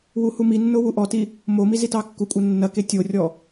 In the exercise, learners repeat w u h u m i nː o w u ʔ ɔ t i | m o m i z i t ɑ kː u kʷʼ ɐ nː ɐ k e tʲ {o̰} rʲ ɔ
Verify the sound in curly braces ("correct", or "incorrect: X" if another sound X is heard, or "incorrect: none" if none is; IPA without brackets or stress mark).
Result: incorrect: o